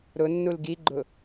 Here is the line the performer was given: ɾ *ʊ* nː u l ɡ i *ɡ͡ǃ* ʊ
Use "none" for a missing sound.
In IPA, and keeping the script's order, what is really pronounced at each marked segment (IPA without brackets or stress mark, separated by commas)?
ʊ, ɡ͡ǃ